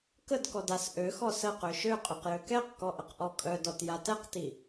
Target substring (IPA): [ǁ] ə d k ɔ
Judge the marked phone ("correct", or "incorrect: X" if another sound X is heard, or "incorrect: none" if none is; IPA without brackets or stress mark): incorrect: k